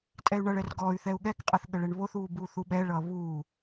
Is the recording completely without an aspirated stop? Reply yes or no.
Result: yes